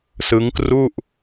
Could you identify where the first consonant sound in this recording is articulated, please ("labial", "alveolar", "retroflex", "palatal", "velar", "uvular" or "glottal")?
alveolar